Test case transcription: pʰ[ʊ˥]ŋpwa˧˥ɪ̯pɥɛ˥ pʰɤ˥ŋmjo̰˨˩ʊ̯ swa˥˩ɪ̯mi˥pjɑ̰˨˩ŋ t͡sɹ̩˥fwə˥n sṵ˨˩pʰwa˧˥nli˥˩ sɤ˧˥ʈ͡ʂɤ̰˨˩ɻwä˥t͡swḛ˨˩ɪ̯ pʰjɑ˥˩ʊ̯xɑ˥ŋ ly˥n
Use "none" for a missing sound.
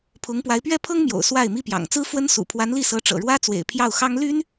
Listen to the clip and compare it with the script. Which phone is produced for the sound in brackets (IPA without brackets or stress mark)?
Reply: ʊ˧˥